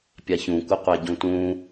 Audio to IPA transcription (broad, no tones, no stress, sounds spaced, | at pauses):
pʲ a ç ũ kʷ ɪ qʷ ɛ ɟ ũ t ũ